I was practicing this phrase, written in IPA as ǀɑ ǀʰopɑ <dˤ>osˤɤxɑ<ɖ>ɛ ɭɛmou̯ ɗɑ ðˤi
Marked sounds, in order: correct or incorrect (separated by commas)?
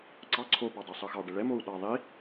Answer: correct, correct